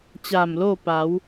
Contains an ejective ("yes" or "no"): no